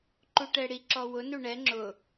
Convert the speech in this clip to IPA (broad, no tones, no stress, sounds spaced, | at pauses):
ǃ u ʈ ɛ ɽ i ǁ ɔ w ʊ n u ɳ ɛ ŋ͡ǁ ʊ